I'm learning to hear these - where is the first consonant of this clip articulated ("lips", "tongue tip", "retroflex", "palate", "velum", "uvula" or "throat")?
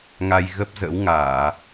velum